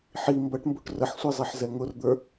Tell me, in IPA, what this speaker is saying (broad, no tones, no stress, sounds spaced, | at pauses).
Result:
ħ i m b ʌ ʈ m b u ʈ r ə ħ sʷ i zˤ i ħ z ɛ ŋ ʊ r d̪ ə˞